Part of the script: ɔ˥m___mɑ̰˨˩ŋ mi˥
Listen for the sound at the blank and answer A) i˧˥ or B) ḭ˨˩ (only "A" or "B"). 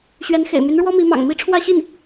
A